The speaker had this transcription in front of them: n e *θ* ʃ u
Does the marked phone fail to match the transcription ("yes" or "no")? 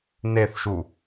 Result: no